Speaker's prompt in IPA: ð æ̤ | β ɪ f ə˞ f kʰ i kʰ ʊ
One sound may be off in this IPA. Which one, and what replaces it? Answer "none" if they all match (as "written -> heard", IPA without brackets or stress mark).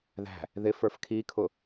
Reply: β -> ð